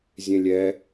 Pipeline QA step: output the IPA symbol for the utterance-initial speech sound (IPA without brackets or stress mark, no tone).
zʲ